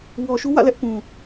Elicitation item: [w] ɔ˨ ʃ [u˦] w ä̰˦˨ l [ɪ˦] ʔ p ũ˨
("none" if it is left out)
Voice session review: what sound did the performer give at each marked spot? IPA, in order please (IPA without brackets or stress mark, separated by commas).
w, u˦, ɛ˦